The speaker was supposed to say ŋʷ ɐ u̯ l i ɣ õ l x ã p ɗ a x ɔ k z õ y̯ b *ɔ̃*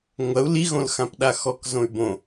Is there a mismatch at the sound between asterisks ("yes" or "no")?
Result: yes